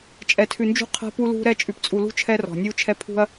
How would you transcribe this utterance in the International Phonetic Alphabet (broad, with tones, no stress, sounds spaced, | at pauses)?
t͡ʃʼ ɛ˨ tʰ ʉ˨ n d͡ʒ ṳ˦ qʰ ɛ̤˦ p u˦ l ṳ˦ ɾ ɛ˦ t͡ʃʼ ʉ˨ p t͡sʼ u˨ l ṳ˦ t͡ʃʰ ɛ˦ r ɔ̤˨ nʲ u˦ t͡ʃʰ ɛ˦ pʰ ṳ˦ ɐ̯